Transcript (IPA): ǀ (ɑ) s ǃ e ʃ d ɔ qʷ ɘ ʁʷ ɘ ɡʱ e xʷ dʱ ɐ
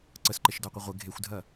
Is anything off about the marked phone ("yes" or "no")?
yes